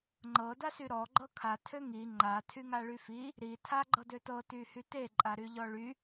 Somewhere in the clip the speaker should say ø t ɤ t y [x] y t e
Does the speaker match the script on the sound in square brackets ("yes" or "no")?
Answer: no